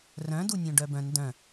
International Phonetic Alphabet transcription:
r œ̃ d u nʲ õ ɖ œ b œ̃ n d œ̃

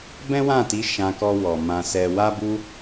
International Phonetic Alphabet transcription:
b ɛ̃˦ w ã˦˨ t i˨˦ ʃ ã˧ k ɔ˧ w ɔ˨ m ã˧ s ɛ˧ w a˦ b u˦

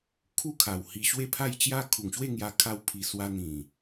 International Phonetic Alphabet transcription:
kʰ u˥˧ kʰ a˨˩ w h i˧ ɕ w e˥˧ pʰ a˥˧ j t͡ɕ j a˦ kʰ u˨˩ ŋ ɕ w e˥˧ ŋ j a˧ kʰ a˧ w pʰ i˨˩ s w a˧ n̪ ĩ˨˩

